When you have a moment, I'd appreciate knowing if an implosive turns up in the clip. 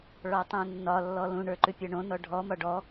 no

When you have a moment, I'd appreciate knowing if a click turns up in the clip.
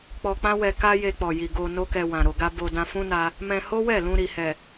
no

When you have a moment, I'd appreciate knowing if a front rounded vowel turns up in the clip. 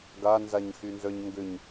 yes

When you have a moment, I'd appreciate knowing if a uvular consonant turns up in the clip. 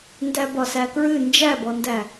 no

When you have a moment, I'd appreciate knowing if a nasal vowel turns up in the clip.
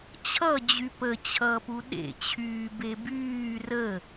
no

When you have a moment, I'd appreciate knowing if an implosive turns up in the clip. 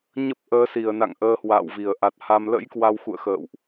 no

